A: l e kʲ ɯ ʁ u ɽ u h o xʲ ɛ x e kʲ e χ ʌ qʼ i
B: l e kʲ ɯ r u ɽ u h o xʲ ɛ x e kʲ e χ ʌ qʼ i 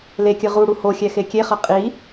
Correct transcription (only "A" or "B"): A